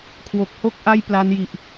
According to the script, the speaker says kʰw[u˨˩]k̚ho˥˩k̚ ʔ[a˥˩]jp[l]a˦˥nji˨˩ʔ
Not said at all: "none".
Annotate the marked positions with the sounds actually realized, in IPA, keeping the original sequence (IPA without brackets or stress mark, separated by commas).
o˨˩, a˥˩, l